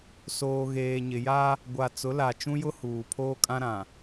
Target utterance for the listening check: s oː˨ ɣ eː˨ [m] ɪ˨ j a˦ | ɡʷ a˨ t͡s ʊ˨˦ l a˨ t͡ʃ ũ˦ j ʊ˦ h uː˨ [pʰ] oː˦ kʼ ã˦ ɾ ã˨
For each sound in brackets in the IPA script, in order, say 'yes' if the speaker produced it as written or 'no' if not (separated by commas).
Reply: no, yes